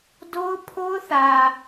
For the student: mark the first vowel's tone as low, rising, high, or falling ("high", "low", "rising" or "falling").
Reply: high